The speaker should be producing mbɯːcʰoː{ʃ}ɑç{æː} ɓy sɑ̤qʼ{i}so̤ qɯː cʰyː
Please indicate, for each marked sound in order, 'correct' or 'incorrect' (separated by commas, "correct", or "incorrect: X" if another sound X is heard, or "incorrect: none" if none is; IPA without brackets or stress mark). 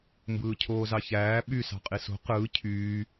incorrect: z, correct, correct